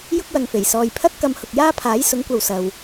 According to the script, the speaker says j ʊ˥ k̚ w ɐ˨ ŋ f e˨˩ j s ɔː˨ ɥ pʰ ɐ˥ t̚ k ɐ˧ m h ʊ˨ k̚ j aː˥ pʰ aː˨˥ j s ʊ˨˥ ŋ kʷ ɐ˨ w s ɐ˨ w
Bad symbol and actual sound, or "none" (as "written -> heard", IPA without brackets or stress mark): ɥ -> j